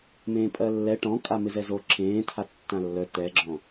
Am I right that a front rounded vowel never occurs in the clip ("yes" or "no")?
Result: no